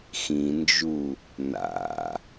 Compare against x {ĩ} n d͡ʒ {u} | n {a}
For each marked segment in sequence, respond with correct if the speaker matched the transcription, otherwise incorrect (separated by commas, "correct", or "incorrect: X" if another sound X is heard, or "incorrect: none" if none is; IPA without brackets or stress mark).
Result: correct, correct, incorrect: a̰